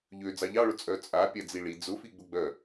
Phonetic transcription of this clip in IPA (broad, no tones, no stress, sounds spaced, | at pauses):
ʎ ø d͡z ɑ ʎ ɑ ɭ ʊ t͡sʼ œ t͡sʼ a pʲ a d͡z i ɭ i d͡z ʊ f i ɡ͡b ʊ ɡ͡b œ